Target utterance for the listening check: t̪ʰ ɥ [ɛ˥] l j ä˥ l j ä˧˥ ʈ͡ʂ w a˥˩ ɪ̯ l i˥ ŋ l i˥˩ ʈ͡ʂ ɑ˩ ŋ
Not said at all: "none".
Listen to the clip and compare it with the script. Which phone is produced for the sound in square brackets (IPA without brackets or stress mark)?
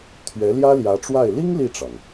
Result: ɛ˧˥